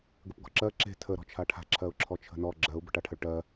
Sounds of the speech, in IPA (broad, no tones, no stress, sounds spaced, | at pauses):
ɡ ə p ɡ ɔ̤ ǁ ɜ ǁ e̤ tʰ ə ɾ ɔ̤ t͡ʃʰ a ʈʰ a̤ ǁʰ ɜ ʊ̯ ǁʰ ɔ t͡ʃʰ ə̤ n ɔ ɡ͡ǁ ɜ ʊ̯ b ə̤ ʈ a ʈʰ ə ɭ ʈ ɜ